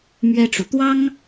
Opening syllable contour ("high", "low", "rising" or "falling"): high